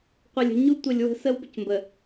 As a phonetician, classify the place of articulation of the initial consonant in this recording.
uvular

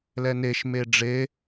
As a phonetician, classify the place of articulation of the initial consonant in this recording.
alveolar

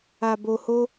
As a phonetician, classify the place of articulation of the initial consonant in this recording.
labial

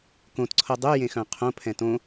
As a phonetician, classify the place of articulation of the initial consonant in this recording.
velar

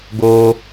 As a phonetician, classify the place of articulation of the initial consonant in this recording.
velar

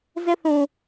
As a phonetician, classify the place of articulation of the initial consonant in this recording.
alveolar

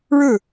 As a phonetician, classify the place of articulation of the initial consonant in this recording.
retroflex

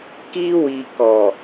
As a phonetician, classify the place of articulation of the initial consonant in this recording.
velar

